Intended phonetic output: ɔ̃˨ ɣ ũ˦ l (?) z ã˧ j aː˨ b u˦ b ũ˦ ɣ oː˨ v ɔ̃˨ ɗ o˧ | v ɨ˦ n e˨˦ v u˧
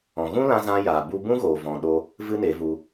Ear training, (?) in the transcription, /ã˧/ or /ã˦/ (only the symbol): ã˧